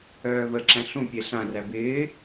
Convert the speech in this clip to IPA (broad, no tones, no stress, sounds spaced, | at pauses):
œː β ə ǁ æ̃ ɬ ũ pʲ e ɬ ã r æ b ɪː